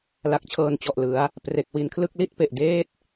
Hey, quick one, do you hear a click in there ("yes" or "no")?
no